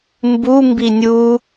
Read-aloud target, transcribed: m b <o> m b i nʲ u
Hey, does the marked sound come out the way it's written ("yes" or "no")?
no